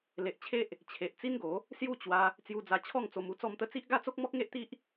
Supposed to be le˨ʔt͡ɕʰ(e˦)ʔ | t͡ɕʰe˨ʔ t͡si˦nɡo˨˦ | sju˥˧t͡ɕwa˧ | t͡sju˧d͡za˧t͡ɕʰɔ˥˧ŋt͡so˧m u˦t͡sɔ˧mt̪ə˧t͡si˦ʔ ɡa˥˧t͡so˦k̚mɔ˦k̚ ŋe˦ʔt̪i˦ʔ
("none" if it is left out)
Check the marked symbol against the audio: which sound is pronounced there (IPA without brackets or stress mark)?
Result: e˦